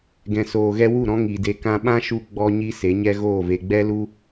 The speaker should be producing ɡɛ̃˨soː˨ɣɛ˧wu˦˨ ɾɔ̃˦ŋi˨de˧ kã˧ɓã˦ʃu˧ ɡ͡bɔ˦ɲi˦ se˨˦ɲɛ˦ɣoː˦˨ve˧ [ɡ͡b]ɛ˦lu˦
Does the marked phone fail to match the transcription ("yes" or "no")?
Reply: no